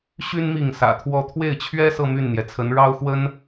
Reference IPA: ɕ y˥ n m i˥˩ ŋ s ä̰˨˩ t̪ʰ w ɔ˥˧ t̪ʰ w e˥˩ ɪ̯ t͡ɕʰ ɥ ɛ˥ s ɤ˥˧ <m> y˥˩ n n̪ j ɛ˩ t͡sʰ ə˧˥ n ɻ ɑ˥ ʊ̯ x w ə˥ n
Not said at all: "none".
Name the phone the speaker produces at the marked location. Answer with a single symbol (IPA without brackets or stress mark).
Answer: m